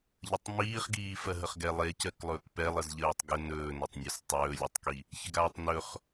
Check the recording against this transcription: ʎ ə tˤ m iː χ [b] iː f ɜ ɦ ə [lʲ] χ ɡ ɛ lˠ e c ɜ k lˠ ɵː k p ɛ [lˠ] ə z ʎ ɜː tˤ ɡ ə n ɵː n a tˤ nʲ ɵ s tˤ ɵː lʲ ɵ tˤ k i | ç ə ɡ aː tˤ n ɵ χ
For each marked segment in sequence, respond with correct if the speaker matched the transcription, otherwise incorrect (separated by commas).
incorrect, incorrect, correct